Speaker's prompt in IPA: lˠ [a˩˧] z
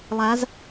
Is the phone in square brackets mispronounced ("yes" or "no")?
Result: no